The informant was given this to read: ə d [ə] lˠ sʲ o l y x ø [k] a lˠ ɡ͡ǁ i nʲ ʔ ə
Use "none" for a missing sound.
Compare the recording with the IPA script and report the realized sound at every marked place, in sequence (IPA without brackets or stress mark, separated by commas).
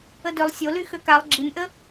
ø, k